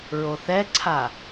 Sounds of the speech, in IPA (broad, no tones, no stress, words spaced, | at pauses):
ɹoθɛǀʰa